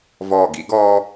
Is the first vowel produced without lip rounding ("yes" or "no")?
no